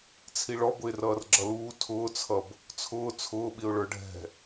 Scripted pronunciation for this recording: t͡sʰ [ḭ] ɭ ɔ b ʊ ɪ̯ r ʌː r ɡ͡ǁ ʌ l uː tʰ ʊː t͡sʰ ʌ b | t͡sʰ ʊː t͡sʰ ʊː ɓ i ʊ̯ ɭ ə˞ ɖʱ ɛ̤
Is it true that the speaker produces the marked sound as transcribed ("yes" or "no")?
no